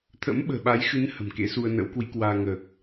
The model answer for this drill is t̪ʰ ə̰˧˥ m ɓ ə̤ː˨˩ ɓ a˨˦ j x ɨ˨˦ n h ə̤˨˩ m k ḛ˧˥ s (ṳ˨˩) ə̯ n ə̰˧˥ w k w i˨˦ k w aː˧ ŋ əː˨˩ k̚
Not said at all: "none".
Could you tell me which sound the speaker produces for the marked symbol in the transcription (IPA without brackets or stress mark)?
u˧